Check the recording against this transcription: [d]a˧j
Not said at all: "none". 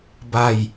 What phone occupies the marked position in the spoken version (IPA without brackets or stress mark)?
b